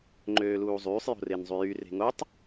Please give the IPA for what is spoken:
ŋ͡ǃ øː l uː zˤ yː sˤ j o̤ r e n zˤ y j y r e̤ ŋ o tˤ

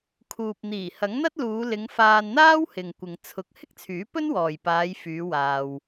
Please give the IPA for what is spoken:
kʰ uː˨ p̚ n̪ iː˨˩ h ɐ˨˥ ŋ n̪ ɐ˥ t̚ l uː˨˧ l ɪ˨˧ ŋ f aː˧ n n̪ aː˥ w h ɪ˨ ŋ kʷ ɪ˨ ŋ t͡sʰ ʊ˨˥ k̚ h ɪ˥ k̚ t͡sʰ yː˨˥ p ɵ˥ n w ɔː˨ j p aː˨˧ j f yː˨˧ w aː˧ w

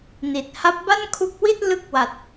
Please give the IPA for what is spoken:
n i˨˩ t̚ h a˦˥ p̚ b a˥˩ n kʰ u˦˥ k̚ w i˥˩ t̚ l ɯ˦˥ k̚ w a˨˩ t̚

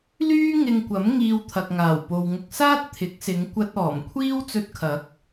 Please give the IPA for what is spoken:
l yː˥ ŋ ɪ˧ ŋ kʷ ɐ˨˥ m ŋ iː˧ w t̪ʰ ɐ˨ k̚ ŋ aː˨˩ w p o˨ w ŋ ʊ˨ k̚ s aː˥ t̚ t̪ʰ ɪ˨˥ k̚ s ɪ˨˧ ŋ kʷ ɐ˧ t̚ ɔː˨˩ m kʷʰ iː˥ w t͡s ɵ˧ t̚ kʰ ɐ˨˥ k̚

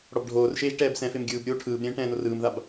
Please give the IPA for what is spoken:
ɽ ɔ b ɖʱ oː r ʃ eː ʒ ʈ ɛː b s ɛ̃ f e m ɡʲ ɯː b ɾʲ oː ʈʰ ɯː b ɾʲ ɛ̃ː ʈ ɛ̃ː n o r ɯː m ð a b

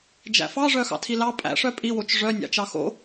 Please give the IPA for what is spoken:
d͡ʒ æ̰ f ɑ ʐ œ x ɑ̰ tʰ i l ɑ pʼ æ̰ ʂ œ pʼ i w o t͡ʃ ʐ œ nʲ ɑ̰ t͡ʃ ɑ x o̰

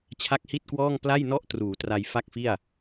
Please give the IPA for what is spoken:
t͡ɕʰ a˦˥ k̚ h i˥˩ t̚ k w ɔː˥˩ ŋ p l a˥˩ j n ɔ˥˩ ʔ t r uː˩˦ t r a˧ j f a˥˩ k̚ f i˥˩ a̯

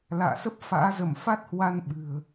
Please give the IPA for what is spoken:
l a̰ː˧˨ s ə˦˥ p̚ f a̰ː˧˥ z ə˧˩ m f a˦˥ t̚ h w a˧ n ɓ ɨ̤˨˩ ə̯

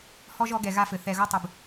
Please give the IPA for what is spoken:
h ɔ˦ ʒ ɔ˨˦ ɡ ɛ˨ ɣ a˧ f ɘ˨ θ ɛ˨ ɣ o˧ tˤ ɨ˨ b

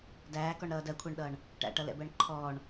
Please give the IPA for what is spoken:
d æː k ɔ ɳ ɾ ʌː d ɜ kʷʰ æ ɳ ɗ ʌː ɳ | ʈ æ̰ ʈ ʌ l ɛ̰ b ɜ ɳ ǃʰ ɔː ɳ

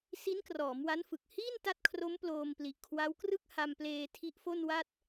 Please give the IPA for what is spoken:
s i˦˥ n k r ɔː˩˦ m w a˦˥ n f ɯ˨˩ k̚ h iː˥˩ n t a˦˥ t̚ kʰ r o˦˥ m p l oː˧ m p l i˨˩ ʔ kʰ w a˦˥ w k r ɯ˥˩ k̚ h a˧ m p l eː˧ tʰ i˦˥ ʔ f o˥˩ n w a˥˩ t̚

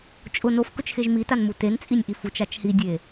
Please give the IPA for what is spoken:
t͡ʃʼ ʊ n o f k ʊ t͡ʃ x e ʒ m i t a n m u t e n t͡sʼ i nʲ ʔ i f u t͡ʃ a t͡ʃ h i dʲ e

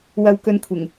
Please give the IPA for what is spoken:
w ɐ˧ w k ɵ˧ n kʷʰ ɪ˨˩ ŋ

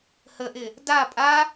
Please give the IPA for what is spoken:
h ə ʔ ɪ | d a pʼ a

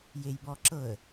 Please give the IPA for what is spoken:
j e j b ɔ ǁ ɤ ə̯

